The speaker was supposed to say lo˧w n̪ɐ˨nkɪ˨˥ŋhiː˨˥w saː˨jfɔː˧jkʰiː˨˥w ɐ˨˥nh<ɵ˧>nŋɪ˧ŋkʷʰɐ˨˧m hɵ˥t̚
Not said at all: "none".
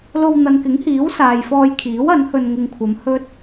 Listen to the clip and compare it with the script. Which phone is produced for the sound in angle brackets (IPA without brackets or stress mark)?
ɵ˧